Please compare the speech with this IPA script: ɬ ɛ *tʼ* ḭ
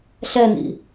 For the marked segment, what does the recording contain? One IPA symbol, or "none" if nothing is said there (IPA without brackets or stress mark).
n